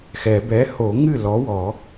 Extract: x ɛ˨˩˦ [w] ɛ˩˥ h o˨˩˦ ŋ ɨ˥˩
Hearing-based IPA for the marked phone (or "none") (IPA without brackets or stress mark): b